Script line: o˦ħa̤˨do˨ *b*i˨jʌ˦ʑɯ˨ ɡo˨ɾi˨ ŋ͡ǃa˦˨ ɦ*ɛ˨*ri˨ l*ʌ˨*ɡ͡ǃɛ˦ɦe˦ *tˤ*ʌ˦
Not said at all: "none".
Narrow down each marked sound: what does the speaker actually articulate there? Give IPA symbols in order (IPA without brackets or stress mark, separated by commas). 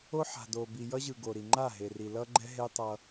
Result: b, e˨, ʌ˦, tˤ